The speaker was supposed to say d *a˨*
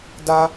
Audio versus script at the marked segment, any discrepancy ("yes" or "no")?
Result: yes